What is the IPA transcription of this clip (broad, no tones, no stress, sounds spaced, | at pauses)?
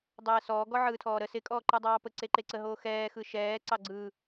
dˤ ɛː s ɔː ɡ ɔ ʕ ɯː tʰ ɔː ɾ ə s ɪ kʼ ɔː ǃ ɯ dˤ ɑː p ə ǀ e ǃ e ǀ ə ɦ oː x ɛː x ɯ ʃ ɛː ǀ ɑ ɡ͡ǀ ɯː